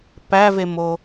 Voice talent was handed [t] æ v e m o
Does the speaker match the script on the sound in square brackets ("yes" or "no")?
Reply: no